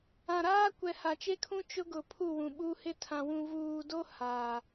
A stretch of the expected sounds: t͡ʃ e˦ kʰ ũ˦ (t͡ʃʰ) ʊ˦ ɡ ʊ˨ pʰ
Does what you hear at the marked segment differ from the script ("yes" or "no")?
yes